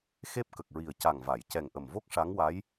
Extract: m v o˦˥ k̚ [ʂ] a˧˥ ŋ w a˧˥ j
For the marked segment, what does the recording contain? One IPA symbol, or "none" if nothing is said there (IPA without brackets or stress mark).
ʂ